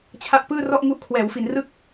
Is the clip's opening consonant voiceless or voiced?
voiceless